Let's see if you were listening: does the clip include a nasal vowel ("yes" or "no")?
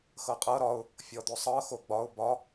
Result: no